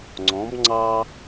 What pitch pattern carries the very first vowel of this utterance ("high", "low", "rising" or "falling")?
rising